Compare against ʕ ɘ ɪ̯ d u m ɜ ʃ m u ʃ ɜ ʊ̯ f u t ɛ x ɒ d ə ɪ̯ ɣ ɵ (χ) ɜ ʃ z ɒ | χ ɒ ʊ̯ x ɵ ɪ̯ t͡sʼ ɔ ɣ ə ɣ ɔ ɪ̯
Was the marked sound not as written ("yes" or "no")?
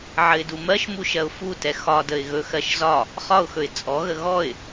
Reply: yes